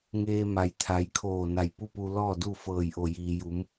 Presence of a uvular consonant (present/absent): absent